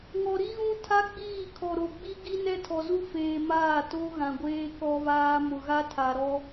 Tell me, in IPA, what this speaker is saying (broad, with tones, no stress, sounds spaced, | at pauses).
ŋ ɔ˨ ɾ i˦ ɣ ũ˦ tʰ a˦ ɡ͡b iː˦˨ kʰ ɔ˨ ɾ o˨ ɡ͡b i˦ ɡ i˦ n ɛ˦ tʰ ɔ˨ z u˦ f eː˨ m aː˦˨ t o˦ ɣ ã˨ ɡʷ eː˦ k ɔ˦ β aː˦ m ʊ˨ ɣ a˦ tʰ a˨ ɾ ɔ˦